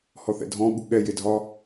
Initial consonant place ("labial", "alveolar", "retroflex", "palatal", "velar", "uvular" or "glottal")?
glottal